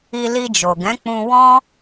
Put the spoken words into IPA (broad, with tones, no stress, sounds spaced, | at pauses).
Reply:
i˧ l i˧ d͡ʒ o˨ ɡ ɛ̃˨˦ k͡p ũ˧ w ɔ̃˦